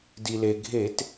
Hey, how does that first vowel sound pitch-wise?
low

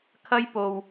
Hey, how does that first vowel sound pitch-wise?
high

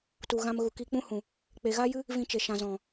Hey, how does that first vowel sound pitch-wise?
low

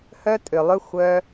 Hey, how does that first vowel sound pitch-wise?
high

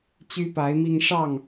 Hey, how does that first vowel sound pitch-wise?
high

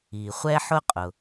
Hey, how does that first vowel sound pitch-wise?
low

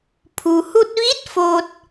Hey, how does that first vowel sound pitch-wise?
low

